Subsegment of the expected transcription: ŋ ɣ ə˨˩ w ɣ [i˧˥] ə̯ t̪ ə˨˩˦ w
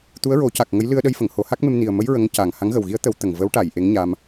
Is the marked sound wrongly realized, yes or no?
no